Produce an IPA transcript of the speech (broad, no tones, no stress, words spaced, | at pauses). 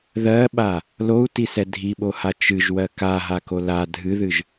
ðɜɓa | lou̯tisɛ dʱiɓoha t͡ʃɨʒwɜ kaɦako la dʱɨðɨʒ